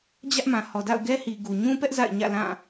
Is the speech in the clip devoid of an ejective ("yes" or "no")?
yes